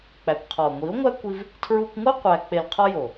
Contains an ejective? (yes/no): no